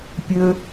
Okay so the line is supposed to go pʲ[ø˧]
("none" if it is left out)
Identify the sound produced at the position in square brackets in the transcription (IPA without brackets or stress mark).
ø˧